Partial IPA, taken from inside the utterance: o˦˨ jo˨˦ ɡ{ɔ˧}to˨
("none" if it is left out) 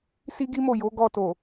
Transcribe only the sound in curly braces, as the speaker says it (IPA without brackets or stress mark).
ɔ˧